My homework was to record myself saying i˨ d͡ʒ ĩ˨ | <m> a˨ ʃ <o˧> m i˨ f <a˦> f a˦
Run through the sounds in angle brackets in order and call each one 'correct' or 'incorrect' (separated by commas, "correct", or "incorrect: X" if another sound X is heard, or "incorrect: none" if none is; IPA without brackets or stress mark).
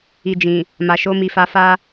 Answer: correct, correct, incorrect: a˧